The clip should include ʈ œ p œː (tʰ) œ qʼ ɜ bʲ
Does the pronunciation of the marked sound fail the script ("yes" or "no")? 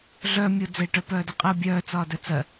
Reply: yes